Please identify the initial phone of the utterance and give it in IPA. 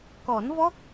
k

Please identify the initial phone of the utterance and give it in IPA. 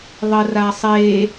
ðˤ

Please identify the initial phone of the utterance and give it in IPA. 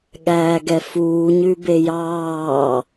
ɠ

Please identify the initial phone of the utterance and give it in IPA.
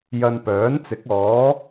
j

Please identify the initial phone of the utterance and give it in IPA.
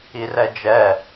i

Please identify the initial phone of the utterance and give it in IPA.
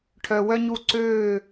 ʈʰ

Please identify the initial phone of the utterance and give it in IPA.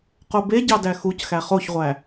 q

